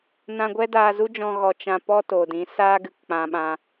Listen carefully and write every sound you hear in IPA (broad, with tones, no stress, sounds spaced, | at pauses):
n ã˧ ɡʷ ɛ˦ d aː˧ z u˦ d͡ʒ ɔ̃˧ ɣ ɔ˨ t͡ʃ ã˧ p ɔ˦ t o˨ d ĩ˨˦ s aː˦ ɡ ɨ˧ k k͡p ã˧ ɓ ã˧